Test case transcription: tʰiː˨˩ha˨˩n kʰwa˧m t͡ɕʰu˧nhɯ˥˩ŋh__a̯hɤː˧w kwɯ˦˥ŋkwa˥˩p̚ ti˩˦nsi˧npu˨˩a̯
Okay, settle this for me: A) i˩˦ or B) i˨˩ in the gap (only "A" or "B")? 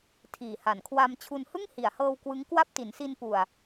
B